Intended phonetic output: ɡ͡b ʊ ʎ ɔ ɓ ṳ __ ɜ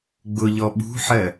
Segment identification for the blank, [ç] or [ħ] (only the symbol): ħ